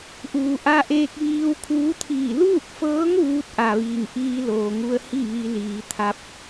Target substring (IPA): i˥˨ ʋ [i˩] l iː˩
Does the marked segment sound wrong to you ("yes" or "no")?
yes